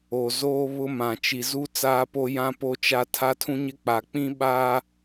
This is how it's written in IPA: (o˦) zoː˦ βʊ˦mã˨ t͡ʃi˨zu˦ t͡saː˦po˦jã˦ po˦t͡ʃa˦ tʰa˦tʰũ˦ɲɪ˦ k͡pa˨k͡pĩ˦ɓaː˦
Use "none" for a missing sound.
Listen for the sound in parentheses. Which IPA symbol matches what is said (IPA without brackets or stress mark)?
o˨